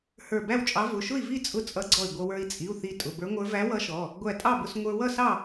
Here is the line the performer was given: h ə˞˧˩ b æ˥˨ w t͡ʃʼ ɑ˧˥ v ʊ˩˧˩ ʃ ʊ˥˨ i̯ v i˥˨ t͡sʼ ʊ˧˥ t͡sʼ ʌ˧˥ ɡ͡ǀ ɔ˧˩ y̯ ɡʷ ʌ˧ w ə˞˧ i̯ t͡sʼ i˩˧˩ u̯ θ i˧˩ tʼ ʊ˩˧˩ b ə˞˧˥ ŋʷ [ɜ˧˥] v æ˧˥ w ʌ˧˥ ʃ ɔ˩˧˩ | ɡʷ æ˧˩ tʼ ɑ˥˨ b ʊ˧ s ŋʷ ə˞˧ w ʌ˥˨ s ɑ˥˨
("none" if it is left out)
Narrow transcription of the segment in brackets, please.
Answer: ə˞˧˥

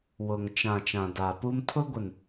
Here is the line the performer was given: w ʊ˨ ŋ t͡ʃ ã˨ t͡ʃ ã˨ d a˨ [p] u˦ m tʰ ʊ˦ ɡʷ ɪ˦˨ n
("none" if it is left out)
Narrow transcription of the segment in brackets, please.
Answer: p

